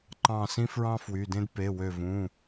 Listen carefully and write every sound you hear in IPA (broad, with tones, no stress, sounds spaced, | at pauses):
ǃ ɑ̃˧˩ s ĩ˥ f ɹ ɑ̃˥ f w y˩˧˩ d ẽ˥ d p e˩˧˩ w ø˧˩ v ũ˩˧˩